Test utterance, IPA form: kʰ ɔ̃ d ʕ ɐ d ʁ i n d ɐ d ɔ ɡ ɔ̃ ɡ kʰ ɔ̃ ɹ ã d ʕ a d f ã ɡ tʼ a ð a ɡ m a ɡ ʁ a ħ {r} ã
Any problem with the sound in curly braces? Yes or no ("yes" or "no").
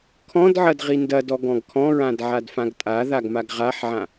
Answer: yes